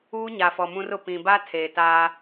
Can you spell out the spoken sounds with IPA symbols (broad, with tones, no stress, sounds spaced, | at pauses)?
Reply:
uː˦ ɲ a˨ f ɔ˨ m ũ˦ r ʊ˨ p ĩ˨ b a˦ tʰ eː˨ t aː˦